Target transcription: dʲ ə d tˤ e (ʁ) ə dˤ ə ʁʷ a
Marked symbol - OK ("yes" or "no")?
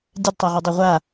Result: yes